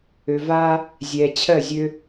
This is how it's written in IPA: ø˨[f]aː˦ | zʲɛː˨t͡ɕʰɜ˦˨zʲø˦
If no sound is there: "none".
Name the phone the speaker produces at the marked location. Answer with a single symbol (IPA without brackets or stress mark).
v